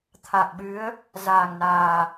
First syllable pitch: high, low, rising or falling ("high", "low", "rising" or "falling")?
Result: low